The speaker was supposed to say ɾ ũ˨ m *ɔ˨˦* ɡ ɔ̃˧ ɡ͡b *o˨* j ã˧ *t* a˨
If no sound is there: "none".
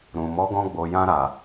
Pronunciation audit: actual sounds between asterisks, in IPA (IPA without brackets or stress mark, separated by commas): ɔ˨˦, o˨, ɾ